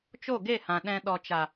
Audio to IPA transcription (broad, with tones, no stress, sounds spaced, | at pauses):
t͡ʃ o˦˨ ɡ e˦˨ h ã˨ ɗ ɛ̃˨ ɗ ɔ˨ t͡ʃ a˨